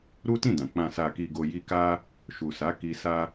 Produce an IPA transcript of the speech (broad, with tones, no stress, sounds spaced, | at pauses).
ɾ u˦ t ĩ˦˨ d ã˨ k͡p ã˨ s a˨ k i˨ ɡ o˨ j i˧ k a˦ | ʃ u˨ s a˨˦ k i˧ s a˧